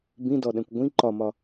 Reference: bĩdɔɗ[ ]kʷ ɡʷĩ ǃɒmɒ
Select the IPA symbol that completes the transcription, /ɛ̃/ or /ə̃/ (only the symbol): ɛ̃